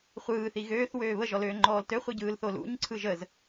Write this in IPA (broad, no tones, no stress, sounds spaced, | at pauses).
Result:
χʷ ɯː θ i ɣ øː θ w øː β ə ʒ ɔ l øː ŋ͡ǃ ɔː l t ø χʷ i ɟ ɯː l θ o l ṵ ɲ ǀʰ ɯ ʒ ə z